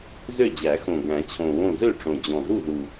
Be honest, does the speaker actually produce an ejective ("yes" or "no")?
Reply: no